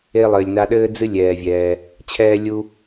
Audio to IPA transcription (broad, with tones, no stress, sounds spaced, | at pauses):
e˧ lˠ ɘː˨ lʲ n a˧ ɗ ɘː˦ d͡z ɨ˦ lʲ ɛː˧ vʲ ɛː˧ | t͡ɕʰ ɛː˦ lʲ u˦